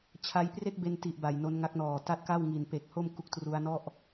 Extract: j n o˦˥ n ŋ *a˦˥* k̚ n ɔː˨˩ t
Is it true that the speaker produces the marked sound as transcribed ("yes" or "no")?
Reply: yes